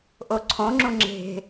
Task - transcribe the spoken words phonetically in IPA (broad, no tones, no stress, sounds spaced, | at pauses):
ʔ o ǀʰ õ ŋ͡ǁ ũ ŋ͡ǁ e̤